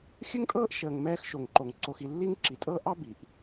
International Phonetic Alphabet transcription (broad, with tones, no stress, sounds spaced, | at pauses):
xʲ ɘ˥ ŋ tʼ ɤː˥ ʔ ʃ əː˨ ŋ m ɛː˦ x ʃ o˩ ŋ ǃ o˩ ŋ ǀ o˨ x i˨ lː i˦ ŋ ǁ i˩ tʼ ɤ˦ ʔ ɑ˥ b i˩ ʔ